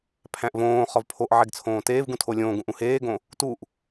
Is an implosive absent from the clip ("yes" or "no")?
yes